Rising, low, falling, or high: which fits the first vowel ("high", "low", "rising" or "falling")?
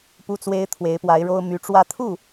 high